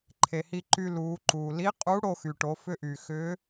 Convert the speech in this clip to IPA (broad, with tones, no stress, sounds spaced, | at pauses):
ǃʰ e˩ h i˧ ǃ y˧ l uː˩˧ ǃ uː˩ l i˧˥ qʼ u˧˥ ɽ o˧ x y˩ ʈ o˩˧ f ʏ˧ ʔ y˩ x ʏː˧˥